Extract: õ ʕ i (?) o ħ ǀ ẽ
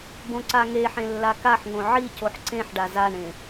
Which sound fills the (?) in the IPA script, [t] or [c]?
c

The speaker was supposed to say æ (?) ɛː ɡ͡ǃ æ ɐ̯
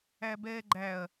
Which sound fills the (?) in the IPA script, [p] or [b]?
b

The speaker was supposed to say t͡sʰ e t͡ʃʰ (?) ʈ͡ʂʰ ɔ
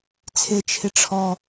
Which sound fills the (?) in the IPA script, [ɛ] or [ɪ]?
ɪ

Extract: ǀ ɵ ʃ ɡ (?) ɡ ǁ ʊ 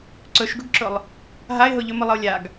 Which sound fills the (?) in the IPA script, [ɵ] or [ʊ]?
ʊ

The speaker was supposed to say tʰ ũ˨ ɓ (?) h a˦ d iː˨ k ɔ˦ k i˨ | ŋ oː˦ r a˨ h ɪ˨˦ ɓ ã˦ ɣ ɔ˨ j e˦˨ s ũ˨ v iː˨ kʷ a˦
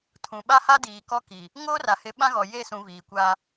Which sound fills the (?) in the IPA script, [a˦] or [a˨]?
a˦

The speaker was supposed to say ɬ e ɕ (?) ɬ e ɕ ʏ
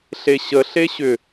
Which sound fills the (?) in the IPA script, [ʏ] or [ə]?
ə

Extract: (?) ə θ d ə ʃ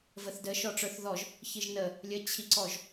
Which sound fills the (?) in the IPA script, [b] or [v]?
v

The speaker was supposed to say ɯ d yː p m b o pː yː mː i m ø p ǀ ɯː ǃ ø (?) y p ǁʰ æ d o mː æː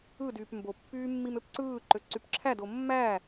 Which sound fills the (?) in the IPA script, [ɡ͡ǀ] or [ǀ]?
ǀ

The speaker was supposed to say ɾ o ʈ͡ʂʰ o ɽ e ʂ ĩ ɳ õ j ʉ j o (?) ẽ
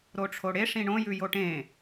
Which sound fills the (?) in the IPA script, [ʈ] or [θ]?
ʈ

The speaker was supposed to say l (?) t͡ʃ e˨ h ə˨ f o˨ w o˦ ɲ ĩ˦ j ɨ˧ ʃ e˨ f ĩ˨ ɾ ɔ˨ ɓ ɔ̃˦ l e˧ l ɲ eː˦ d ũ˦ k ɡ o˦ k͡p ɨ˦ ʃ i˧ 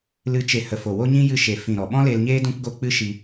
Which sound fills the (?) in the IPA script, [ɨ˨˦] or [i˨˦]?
ɨ˨˦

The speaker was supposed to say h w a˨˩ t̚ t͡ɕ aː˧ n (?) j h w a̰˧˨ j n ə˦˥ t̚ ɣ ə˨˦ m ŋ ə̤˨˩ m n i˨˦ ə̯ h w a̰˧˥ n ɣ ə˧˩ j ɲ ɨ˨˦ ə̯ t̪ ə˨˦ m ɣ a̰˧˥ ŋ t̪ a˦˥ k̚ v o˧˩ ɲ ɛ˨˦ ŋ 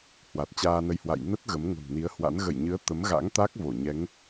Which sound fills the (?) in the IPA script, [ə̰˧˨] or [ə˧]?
ə˧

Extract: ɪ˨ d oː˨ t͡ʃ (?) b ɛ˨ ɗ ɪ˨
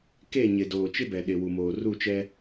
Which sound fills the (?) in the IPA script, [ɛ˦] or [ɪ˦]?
ɪ˦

